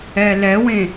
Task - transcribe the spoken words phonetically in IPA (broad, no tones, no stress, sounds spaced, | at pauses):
ɛ l ɛ w ẽ